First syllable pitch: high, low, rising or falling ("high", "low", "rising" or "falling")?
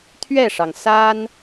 falling